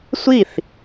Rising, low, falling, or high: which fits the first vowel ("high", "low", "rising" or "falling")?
falling